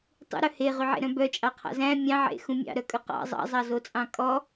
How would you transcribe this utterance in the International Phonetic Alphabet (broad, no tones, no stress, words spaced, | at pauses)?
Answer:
tˤṵɾœ heʁyʕḛɾœ̃ bœt͡ʃʼɑqʰɑ̰ zæ̃ mʲɑ̃ʕḛxũ mʲɑ̰ɾœkʼɵ qɑ̰ zˤɑ̰zˤɑzot͡sʼɑ̃ kʼɔ